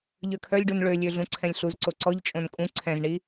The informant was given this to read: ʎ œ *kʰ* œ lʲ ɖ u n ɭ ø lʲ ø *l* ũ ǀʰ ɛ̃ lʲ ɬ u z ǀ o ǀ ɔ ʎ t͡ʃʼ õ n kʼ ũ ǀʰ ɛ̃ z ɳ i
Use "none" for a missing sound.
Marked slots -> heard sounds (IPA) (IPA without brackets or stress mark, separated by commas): kʰ, ɮ